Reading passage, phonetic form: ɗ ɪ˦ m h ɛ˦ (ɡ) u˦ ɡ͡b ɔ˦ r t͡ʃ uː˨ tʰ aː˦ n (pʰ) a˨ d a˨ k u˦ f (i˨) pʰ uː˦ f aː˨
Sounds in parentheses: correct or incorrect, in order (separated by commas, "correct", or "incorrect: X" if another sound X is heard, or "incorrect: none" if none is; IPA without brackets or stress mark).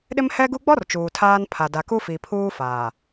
correct, correct, correct